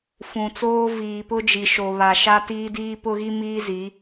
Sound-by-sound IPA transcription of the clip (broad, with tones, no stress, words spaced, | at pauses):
fũ˨t͡soː˦ viː˨pʊ˦d͡ʒi˨ʃo˨ βa˨ ʃa˦tiː˦diː˦ pʊ˦ɣi˦miː˦zi˨˦